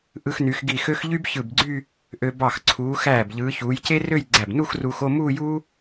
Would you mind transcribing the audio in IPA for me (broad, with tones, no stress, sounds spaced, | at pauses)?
ʔ ɯ˧ x n y˩˧ x ɡ i˧˩ x ø˥ x ʎ y˥ b ç ɯ˧˩ b ɡ͡ǀ y˥˧ | ʔ ø˧ b ɑ˧˩ x ǀʰ uː˩˧ x æː˧˩ b ʎ ɯː˩˧ ç uː˩˧ j c e˥ r ø˥˧ j ɡ͡ǀ æ˧˩ b n u˥˧ x r uː˧ x o˥˧ m uː˥˧ j uː˥